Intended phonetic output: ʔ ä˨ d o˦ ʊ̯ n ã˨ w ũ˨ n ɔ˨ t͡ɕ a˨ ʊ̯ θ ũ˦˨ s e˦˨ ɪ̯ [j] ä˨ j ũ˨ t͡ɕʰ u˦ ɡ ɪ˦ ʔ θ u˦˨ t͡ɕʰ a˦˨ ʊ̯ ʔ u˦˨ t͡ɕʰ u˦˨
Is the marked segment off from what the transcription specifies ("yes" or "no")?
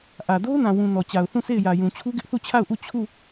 no